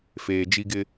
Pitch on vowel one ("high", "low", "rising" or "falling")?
low